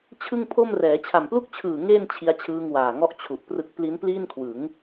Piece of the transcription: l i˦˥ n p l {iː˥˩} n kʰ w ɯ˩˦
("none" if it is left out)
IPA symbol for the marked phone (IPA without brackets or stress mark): iː˥˩